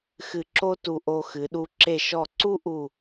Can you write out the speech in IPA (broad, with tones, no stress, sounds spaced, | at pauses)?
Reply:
x ɨ˧ ǁ o˥ t u˧ ʔ o˧ x ɨ˩˧ ɗ u˧ ǁ e˧˩ ʃ ɔ˧˩ ǀ u˥ ʔ u˧˩